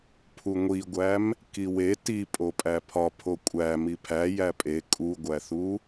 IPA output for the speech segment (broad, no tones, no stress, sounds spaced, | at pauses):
pʰ u ŋʷ i ɡʷ æ m | k i w e t i pʼ o pʼ æ pʰ ɒ pʰ o kʷʼ æ m i pʰ æ j æ pʼ e kʼ u ɡʷ æ θ u